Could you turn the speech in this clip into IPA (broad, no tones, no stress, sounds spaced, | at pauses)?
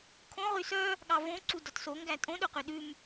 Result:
kʰ õ ʁ y s œ | ɠ ɑ v õ ǀ u d ɔ t s o ŋ ɡ æ tʼ õ ɗ ɵ q ø ɗ ʉ m